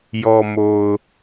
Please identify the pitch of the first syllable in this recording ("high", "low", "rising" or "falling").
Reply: low